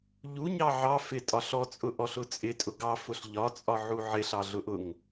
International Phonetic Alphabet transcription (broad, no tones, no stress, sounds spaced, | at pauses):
ʎ u ɲ ɑ ʕ ɑ f ɪ tʼ ɒ ɬ ɔ t͡sʼ ʊ ʔ ɔ ɬ ʊ t͡sʼ ɪ tʼ ʊ ɡ ɑ f ʊ ɬ ʎ ɒ t͡sʼ ɒ ʕ u ʕ ɪ ɬ ɑ ɮ ʊ ʔ ʊ ŋ